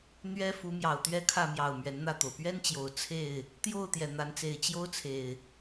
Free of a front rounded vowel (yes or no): yes